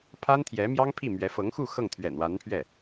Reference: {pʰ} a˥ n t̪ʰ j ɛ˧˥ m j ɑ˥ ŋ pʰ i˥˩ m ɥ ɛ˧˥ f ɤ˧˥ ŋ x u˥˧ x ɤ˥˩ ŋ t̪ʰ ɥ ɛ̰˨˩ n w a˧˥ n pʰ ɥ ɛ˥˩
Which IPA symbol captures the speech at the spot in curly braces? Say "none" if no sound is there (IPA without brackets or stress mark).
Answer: pʰ